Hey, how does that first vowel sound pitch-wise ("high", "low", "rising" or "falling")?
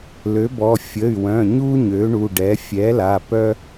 rising